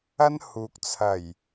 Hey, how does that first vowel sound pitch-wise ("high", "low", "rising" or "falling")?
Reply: high